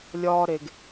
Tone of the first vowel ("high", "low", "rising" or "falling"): high